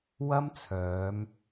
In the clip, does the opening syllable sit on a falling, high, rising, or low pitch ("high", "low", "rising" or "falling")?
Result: high